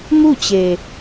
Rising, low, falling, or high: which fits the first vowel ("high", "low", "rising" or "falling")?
falling